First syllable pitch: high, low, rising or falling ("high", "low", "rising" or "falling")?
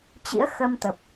rising